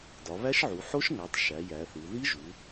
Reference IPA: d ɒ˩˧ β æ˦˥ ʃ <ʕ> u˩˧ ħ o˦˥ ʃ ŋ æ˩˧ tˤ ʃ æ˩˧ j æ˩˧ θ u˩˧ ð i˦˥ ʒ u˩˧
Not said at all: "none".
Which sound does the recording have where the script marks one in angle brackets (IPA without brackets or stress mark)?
ʕ